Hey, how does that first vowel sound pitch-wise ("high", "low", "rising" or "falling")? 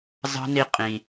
high